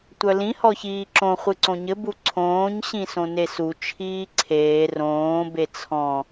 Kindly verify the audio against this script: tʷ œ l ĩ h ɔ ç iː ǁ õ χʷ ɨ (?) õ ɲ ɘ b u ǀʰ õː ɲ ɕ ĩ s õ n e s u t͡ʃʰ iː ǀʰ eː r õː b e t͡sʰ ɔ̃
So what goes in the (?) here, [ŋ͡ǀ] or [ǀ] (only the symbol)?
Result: ǀ